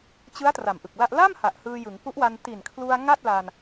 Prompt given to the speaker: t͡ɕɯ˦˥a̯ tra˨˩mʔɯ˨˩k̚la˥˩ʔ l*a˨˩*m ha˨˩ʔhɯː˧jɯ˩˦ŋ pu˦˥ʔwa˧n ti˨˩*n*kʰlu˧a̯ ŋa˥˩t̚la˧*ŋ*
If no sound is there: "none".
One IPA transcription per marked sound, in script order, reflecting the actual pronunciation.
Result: a˥˩, n, n

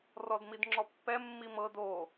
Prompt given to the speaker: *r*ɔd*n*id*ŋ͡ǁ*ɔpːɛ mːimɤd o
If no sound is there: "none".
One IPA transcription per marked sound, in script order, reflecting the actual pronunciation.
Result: r, m, ŋ͡ǁ

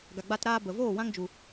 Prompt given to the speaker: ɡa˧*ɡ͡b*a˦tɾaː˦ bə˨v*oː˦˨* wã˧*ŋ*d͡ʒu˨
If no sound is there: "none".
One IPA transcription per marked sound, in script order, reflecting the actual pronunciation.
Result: ɡ͡b, oː˦˨, ŋ

